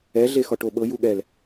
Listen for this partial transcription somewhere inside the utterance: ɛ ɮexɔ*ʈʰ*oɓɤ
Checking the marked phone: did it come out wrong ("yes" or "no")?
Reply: yes